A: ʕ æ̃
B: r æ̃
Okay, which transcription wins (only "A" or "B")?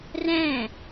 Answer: B